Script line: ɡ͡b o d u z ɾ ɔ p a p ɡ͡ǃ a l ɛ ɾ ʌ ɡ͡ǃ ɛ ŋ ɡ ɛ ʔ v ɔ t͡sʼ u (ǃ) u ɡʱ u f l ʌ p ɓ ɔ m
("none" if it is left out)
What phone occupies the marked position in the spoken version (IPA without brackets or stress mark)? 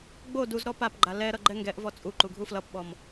ǃ